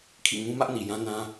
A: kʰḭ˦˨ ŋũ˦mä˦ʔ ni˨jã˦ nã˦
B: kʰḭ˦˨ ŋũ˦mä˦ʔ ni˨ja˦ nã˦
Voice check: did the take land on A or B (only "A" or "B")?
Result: A